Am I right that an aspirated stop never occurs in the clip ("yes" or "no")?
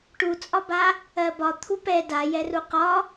no